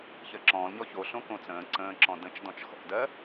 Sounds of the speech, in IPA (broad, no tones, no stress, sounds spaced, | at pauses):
ç ɜ ǁ ɔ̃ː l ɲ ɔ ç o ɬ õ k õ t͡s ə̃ː ǀ ə̃ː ǁ ɔ̃ d ə̃ t͡ʃ d ɔ̃ t͡ʃ x ɔ̰ d ɜ